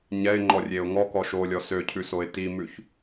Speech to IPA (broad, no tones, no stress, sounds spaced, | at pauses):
ɲ ɛ ɪ̯ ŋ͡ǃ ɔ rʲ e ʊ̯ ŋ ɔ k ɔ ʃ o lʲ ɔ s ø cʰ ʉ s o ɪ̯ t i m ʉ ç